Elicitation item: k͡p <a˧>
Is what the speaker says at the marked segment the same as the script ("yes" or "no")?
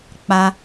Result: yes